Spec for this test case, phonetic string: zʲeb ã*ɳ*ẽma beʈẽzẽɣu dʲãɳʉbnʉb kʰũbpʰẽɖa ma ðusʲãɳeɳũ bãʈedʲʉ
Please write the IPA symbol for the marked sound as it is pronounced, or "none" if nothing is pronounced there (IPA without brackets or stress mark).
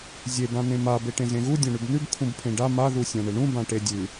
n